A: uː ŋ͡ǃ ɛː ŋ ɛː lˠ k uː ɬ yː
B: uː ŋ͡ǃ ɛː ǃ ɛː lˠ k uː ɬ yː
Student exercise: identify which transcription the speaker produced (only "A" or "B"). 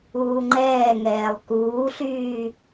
A